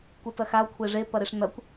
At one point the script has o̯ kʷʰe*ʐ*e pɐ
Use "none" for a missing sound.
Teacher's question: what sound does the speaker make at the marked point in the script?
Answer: ʐ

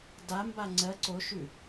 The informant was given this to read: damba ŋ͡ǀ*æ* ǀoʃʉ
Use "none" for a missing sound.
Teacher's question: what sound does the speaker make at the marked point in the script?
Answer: ɜ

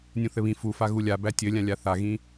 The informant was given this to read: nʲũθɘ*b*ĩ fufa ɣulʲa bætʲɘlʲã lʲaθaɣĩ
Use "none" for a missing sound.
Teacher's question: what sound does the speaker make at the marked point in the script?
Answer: β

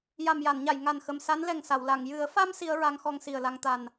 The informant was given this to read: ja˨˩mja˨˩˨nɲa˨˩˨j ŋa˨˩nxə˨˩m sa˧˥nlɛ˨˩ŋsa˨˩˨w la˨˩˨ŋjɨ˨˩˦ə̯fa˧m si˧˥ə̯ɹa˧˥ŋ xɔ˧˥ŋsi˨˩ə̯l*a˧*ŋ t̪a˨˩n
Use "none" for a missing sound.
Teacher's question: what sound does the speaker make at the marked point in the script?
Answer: a˧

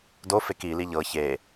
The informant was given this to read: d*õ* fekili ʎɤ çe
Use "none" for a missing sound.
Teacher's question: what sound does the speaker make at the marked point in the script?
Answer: o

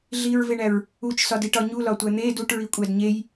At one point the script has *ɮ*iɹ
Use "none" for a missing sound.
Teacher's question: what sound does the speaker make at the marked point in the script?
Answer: ɮ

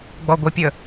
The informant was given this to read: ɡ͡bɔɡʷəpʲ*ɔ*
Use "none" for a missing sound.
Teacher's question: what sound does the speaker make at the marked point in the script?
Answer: ə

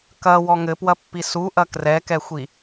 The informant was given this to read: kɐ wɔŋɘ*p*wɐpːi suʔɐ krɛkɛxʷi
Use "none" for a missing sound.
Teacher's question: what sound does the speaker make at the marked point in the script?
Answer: p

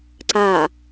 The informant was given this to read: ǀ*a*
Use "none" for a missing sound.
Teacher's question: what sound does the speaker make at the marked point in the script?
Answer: a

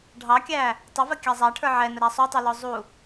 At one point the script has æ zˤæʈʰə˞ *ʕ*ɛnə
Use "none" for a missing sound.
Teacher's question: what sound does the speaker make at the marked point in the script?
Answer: ʕ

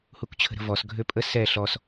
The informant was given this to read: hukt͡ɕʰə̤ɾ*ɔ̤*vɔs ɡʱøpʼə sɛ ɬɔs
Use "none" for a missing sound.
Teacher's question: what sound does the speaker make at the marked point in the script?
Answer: ə̤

